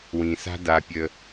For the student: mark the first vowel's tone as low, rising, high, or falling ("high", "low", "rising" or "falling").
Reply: low